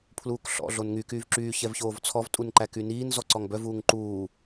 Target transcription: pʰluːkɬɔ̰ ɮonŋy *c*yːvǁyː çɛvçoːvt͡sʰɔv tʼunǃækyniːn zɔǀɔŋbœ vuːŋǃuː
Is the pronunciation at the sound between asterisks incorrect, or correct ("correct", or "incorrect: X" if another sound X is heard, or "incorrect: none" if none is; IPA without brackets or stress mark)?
incorrect: k